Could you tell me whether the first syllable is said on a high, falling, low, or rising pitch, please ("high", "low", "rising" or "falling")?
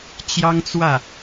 high